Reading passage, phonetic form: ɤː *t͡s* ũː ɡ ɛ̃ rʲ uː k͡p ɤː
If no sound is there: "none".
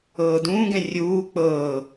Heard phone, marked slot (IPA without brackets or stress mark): d